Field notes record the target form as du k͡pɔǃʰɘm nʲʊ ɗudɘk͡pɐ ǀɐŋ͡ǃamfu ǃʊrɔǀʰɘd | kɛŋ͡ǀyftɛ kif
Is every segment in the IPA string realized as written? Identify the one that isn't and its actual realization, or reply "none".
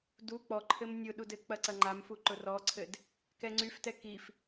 none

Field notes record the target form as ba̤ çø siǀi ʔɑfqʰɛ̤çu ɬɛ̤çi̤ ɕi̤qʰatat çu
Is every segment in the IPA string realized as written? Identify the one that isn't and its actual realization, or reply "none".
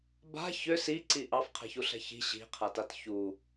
none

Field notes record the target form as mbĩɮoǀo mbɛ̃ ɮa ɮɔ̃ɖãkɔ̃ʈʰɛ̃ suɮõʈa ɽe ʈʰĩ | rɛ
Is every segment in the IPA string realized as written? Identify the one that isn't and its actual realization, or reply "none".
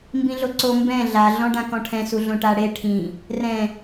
ɛ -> ɛ̃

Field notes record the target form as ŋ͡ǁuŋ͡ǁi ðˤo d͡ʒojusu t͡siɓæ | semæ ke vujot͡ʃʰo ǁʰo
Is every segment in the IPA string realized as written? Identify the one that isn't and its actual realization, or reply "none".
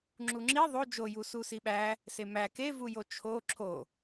t͡s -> s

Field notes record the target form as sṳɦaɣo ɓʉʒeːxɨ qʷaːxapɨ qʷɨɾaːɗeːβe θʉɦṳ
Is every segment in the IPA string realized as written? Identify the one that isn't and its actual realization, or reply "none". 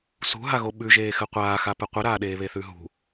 none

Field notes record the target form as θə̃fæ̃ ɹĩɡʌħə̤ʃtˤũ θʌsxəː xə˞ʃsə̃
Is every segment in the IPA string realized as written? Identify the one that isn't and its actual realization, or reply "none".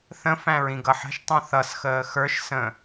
none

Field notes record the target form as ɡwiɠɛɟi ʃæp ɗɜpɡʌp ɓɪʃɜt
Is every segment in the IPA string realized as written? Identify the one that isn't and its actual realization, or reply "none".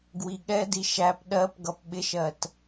ɟ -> d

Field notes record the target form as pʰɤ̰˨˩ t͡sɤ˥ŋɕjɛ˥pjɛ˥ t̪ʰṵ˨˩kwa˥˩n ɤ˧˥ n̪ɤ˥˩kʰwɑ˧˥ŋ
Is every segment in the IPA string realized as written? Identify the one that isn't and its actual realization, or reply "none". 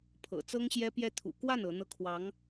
none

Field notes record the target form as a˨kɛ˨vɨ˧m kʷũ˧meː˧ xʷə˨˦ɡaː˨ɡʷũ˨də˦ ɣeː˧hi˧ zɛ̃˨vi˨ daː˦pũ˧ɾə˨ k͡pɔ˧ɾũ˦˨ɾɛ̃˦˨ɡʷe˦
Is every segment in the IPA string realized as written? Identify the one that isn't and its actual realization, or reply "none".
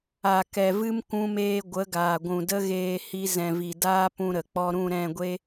xʷ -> ɡʷ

